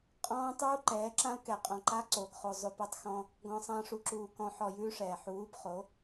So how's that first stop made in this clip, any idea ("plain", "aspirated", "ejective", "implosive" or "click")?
ejective